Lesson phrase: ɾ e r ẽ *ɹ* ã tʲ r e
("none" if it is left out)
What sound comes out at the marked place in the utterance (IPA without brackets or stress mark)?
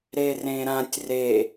ɾ